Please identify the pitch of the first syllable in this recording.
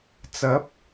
rising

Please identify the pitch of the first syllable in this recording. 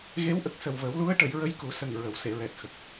rising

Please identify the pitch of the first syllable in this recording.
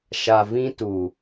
low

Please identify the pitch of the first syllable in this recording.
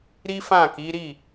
high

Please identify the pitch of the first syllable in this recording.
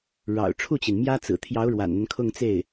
low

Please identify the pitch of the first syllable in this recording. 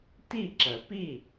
falling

